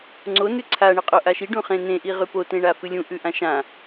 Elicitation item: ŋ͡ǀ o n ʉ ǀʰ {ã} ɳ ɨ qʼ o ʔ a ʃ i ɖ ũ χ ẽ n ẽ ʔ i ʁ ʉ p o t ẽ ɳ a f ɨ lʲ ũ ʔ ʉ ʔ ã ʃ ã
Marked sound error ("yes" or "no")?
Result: yes